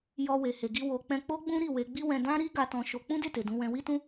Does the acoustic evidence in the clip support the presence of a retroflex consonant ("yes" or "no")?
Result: no